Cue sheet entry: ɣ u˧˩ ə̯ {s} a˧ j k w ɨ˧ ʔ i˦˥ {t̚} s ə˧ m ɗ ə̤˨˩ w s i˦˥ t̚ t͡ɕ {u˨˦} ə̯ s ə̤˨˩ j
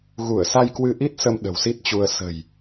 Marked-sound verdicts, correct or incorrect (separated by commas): correct, correct, incorrect